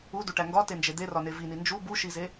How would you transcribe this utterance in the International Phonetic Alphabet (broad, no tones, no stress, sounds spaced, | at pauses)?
u d u ʈ æ ŋ ɡ ɒ t e n d͡ʒ e d̪ e r ɒ n e v i n i n d͡ʒ u b u ʃ i z e